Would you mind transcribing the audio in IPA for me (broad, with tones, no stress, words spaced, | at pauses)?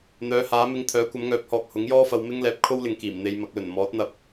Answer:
n̪œː˨˧haː˨˥mɪ˧ŋ t̪ʰœː˨˥kʷɐ˨˥mŋœː˨˥p̚hɔː˨k̚ hʊ˨˥ŋjɔː˥fɐ˧w mɪ˥ŋ lɛː˨p̚kʰo˥wlɪ˨ŋkiː˨˩m n̪e˧jmɐ˨˥k̚lɵ˨˩n mɔː˨˥t̚ n̪ɐ˨p̚